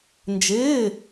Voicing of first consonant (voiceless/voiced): voiced